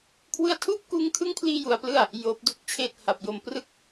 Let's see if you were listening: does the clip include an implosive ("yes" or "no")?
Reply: no